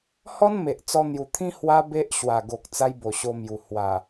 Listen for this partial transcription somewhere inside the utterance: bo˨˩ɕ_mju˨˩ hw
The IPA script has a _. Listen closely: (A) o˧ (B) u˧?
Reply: A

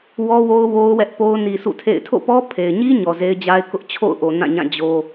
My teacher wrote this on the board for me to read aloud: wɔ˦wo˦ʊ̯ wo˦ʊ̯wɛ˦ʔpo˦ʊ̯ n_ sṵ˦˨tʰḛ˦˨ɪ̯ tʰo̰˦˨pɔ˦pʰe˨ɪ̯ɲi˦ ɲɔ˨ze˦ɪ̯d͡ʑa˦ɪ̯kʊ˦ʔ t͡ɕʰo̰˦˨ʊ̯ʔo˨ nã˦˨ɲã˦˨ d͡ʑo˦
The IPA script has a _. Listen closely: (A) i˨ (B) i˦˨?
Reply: A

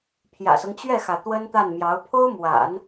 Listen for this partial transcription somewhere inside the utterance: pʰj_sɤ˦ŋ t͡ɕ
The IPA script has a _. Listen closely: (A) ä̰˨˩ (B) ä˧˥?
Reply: A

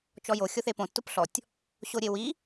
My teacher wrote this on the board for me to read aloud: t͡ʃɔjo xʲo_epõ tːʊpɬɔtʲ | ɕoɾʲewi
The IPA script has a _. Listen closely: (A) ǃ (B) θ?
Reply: B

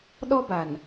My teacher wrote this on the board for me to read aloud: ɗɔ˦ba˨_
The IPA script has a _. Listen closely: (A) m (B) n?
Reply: B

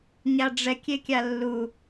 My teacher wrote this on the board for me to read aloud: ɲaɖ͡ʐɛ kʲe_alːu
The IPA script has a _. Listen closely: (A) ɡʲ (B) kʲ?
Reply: B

